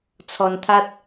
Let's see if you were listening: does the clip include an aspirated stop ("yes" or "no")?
yes